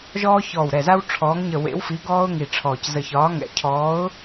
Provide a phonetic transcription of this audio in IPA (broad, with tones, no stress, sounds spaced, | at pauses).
ʒ ɔː˦ ç ɔː˧˩ w ɾ ɛ˧˩ z a˦ w ʈ͡ʂʰ ɔː˨˥ ŋ ɲ ə˧˩ w ḛ˨˥ w f i˨˥ ɡ ɔː˦ ʊ̯ ŋ i˧˩ ʈ͡ʂʰ ɔː˧˩ c z ə˧˩ ç ɒː˨˥ ŋ ɛ̰˧˩ cʰ ɔː˨˥ ʊ̯